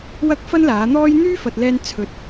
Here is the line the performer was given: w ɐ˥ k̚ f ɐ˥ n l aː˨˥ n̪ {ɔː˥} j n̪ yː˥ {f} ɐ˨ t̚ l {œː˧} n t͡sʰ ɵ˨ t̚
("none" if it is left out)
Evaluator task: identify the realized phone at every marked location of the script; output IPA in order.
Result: ɔː˥, f, ɛː˧

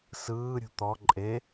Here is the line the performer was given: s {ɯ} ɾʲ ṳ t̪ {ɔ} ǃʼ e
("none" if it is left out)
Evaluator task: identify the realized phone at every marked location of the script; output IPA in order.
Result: ɯː, ɔ

